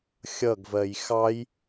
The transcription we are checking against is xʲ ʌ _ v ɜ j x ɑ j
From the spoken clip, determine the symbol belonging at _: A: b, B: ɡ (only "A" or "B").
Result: B